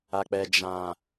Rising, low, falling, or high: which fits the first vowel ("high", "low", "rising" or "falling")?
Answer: low